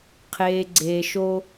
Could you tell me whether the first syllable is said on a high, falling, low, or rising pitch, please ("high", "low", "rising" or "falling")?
low